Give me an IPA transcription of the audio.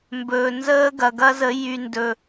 m b ɵː˨ n z əː˦ ɡ ɐ˨ ɡ ɐ˦ z ə˨˦ j y˨ n d ɵ˨

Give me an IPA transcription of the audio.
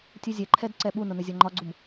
tʲ u zʲ ɛ ǃʰ ɛ d ǀ ɛ ɓ u n ʊ n ə zʲ ɔ ŋ͡ǃ ɒ ɡ͡ǀ u m

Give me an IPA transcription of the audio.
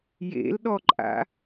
j ḛ l ɗ ɔ ǃʼ a̰

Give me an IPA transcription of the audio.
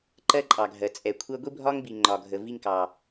ǃ ɜ˦ ǃʼ ɑ˨ ɡʱ ɜ˨ t͡sʼ ɛ˨ kʷʰ ɜ˦ ɡʷ i˦ bʱ ɒ˦ ŋ b i˨ ŋ͡ǃ ɒ˨ ɡʱ ə˨ v i˦ ŋ k ɑ˨

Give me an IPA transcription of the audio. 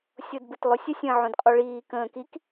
sʲ o d b ɯ t lˠ o sʲ ə sʲ ə̃ː ʕ õ d qʼ o ɭ iː k ə̃ː k i k

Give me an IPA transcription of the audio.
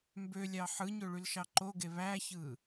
m b ø lʲ ɑ ħ ɯ ɲ ø ɭ y l ʃ ɑ ǃ o ɡ e β æ ç ɯ

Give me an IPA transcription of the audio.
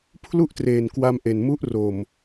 pʰ l u˥˩ ʔ t r eː˨˩ n k w a˧ m ʔ e˨˩ n m u˦˥ ʔ r o˨˩ m

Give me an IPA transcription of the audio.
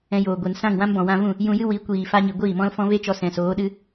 ɛ̃˧ j oː˨ ɡʷ e˨ n s ã˦˨ ŋ w ã˦ m b ɔ̃˨ w ã˧ v ũ˦˨ | j ũ˧ j ɨ˦ w i˨˦ kʷ iː˨ f a˧ ɲ i˨ ɡʷ iː˦˨ m ɔ̃˦ l f ɔ̃˦ v e˦ t͡ʃ ɔ˧ s ɛ̃˨ s oː˨˦ ɗ ɨ˦

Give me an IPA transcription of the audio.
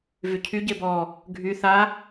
v y cʰ y ɟ e b ɔ | ɡʱ y θ a

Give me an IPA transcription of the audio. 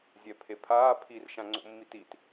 zʲ ɛ pʰ e pʰ aː pʰ i r ʃ ã ŋ͡ǀ o̰ mː i t i t

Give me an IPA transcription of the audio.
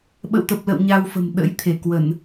ɓ ə̰˧˨ w t̪ ə˨˩ p̚ l ə̰˧˨ w ɲ a˧ w f ə̤˨˩ m ɗ ə̰˧˥ j t̪ʰ e˧˩ k w ə˧˩˨ n

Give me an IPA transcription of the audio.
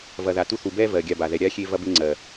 v ɐ˨ ð a˨ t u˦ θ u˨ b ɛ˦ v ɜ˨ ɡʲ a˦˨ b a˨ ð ɛ˨ ɾʲ a˦ xʲ e˦ v ɐ˦ b e˦ ŋ͡ǀ ɜ˨

